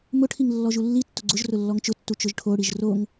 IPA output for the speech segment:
mʊʈʰiŋ lːɔʒulːitːʊ ɡ͡ǀʊʒ rʊlːɔŋt͡ʃʊtːu t͡ʃʊʒʈʰoɽiʒ roŋ

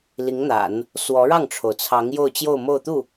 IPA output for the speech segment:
li˧˥ŋn̪a̰˨˩˦n | swɔ˧˥ɻɑ˥˩ŋʈ͡ʂʰo˩ʊ̯t͡sʰɑ˧˥ŋ jo˥˧ʊ̯t͡ɕjo˥˧ʊ̯mo˥˧ʊ̯t̪u˥˩

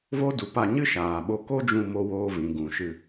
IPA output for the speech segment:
vo˦du˨˦ pa˧ɲɨ˦ ʃaː˨ɓo˧ ko˦d͡ʒũ˧ mo˧woː˧vĩ˨ ɡũ˨ʃɨ˧

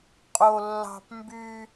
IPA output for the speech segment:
qʼo˥lːɑ̤˥p mby˥

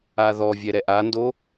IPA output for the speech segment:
aðɔvʲɛ ɾɛʔando

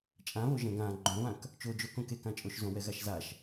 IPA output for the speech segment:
t͡ʃʼãβo ʒɛ̃ɡã ɡ͡ǃõβãk | t͡ʃod͡ʒokõ kekãt͡ʃʼoʃ zõwɛɣaʃzaʃ

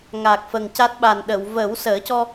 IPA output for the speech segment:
ŋa˨˩k̚ fə˨˩ŋca˦˥t̚ɓa˨˩n ɗə˨˩˨w vəː˨˩˦wsəː˨˩˦cɔ˧

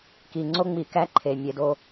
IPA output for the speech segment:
ki˨ŋ͡ǀo˦ŋ͡mi˨kæ˦ ǃʰe˨ mʲe˧do˦

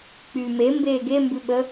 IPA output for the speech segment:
k͡pyːme mbeːɡembʉɓə

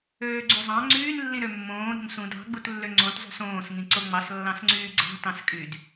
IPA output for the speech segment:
øːɡ͡ǀyzˤɑ̃ ŋ͡ǀyːnlːĩ ɾømːõː ɾṳnsũd ɑ̤ɡ͡butlːø ŋ͡ǀõtzˤṳs õːsŋĩ ǀoŋ͡mɑslːɑ̃sŋ͡ǀyː ɡ͡ǀɑ̤ tɑ̃skʼyd

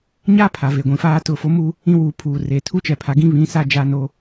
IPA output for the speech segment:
ɲa˦ pʰa˨ve˨ɡʷĩ˨faː˦ tʊ˦˨fo˦mu˦ | ĩ˦wuː˨pʰuː˨reː˨ tʰu˦t͡ʃɛ˨pʰa˨˦ɡĩ˦ βĩ˨˦ sa˦ d͡ʒa˦no˦

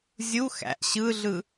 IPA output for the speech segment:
zʲu xæ̰ʔ ɕɯɮɯ

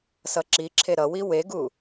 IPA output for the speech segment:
sʌǁiǁʰe ɾʌwi weɡu

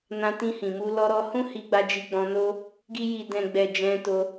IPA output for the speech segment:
nã˧tĩ˧hĩ˨mu˧ lɔ˧ɾɔ˧ hũ˦hi˧ɡ͡ba˧ d͡ʒi˧ɡ͡bɔ̃˧no˦ | ɡi˧ ji˨dɛ̃˨ɡ͡bɛ˨ d͡ʒɛ̃˧to˧

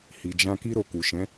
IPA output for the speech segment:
hi˨d͡ʒã˧ki˦ ɾo˧ku˨ʃɛ̃˨˦

